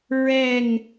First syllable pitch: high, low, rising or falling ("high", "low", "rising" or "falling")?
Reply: falling